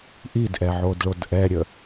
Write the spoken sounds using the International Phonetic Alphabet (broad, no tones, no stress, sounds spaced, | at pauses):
ʔ i d ʔ ɛ ʕ o d ɭ o d ʔ ɛ ɾʲ ə